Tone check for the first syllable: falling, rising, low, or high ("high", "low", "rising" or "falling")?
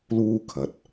high